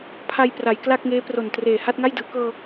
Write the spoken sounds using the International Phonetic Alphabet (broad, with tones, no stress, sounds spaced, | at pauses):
pʰ a˧ j p r a˩˦ j k l a˥˩ k̚ ŋ eː˦˥ p r o˨˩ n t r eː˨˩ h a˥˩ t̚ ŋ a˥˩ j d ɯː˩˦ k ɤː˧